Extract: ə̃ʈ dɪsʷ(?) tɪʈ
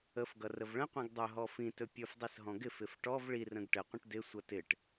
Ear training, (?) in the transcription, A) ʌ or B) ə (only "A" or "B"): A